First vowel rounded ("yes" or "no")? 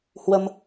no